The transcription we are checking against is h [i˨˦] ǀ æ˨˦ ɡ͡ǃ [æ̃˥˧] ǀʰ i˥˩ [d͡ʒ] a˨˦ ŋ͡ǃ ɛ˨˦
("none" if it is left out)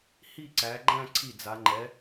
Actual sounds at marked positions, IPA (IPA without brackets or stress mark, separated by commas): i˥˧, æ̃˥˧, d͡z